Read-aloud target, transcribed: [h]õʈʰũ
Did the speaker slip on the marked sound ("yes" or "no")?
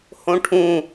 no